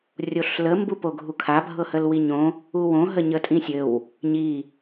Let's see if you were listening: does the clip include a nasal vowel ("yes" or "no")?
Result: yes